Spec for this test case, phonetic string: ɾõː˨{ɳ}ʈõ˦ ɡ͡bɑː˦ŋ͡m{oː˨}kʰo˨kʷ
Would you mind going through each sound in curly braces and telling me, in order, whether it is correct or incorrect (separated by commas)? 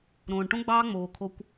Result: correct, correct